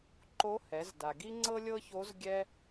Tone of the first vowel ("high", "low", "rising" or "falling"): rising